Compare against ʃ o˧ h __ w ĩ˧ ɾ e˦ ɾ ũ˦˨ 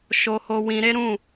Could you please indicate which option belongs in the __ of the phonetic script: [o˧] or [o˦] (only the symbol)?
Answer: o˧